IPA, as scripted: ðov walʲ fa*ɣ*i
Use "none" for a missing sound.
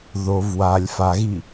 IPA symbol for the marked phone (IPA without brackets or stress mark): ɣ